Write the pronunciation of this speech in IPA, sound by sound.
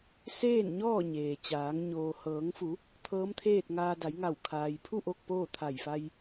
s eː˥˨ n ɲ ɔː˥˨ ɲ eː˩ t͡ɕ aː˩˧ ŋ ɲ oː˩ h ɤː˩˧ ŋ f u˩˧ | t̪ʰ ɤː˧˥ m t̪ʰ eː˥˨ t̚ ŋ aː˧ d a˩˧ j ŋ a˧˩ w kʰ aː˩ j pʰ u˥˨ ʔ o˥˨ k̚ p oː˥˨ t̪ʰ a˧˩ j f a˧ j

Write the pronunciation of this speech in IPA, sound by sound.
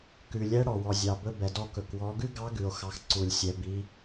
k ʉ˩ lʲ ɛ˧˥ ɽ ɔ˩ w ɔ˩ zʲ ɑ˩ b ɵ˧ b ɛ˩ d ɔ˧ k ɵ˩ k w ɔ˩˧ ɡ ʉ˥ ɡ ɑ˧˥ ɡ ʉ˩ o̯ x ɑ˩˧ x ǀ u˩ lʲ sʲ ɛ˩ b i˩˧

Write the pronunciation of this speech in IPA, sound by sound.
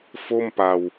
f o˥˩ m p a˧ w

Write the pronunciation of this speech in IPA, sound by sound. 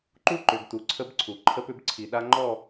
ǃ u˦ ǃ ʏ˨ ɡ t u˨ ǀʰ ə˦ b ǀʰ u˨ ǃʰ ə˦ p ʏ˦ b ǀʰ i˨ ɗ a˦ ŋ͡ǃ ɔ˦˨

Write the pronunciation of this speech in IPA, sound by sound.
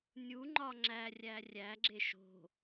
nʲ u ŋ͡ǃ ɒ ŋ͡ǁ æ rʲ æ rʲ æ ɡ͡ǁ e ʃ o̤

